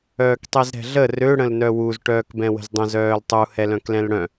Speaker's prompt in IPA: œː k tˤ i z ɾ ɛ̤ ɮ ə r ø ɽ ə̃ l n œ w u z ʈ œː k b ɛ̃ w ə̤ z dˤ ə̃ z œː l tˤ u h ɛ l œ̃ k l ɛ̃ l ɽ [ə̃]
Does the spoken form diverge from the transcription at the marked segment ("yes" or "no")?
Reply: yes